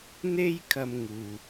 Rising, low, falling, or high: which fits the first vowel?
high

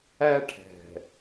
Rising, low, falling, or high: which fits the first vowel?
high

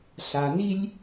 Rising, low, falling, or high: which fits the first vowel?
low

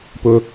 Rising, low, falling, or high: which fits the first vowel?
high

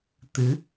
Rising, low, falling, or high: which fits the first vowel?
rising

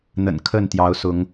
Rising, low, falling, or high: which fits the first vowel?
low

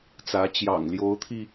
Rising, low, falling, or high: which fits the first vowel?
rising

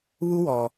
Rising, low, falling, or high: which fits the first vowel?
high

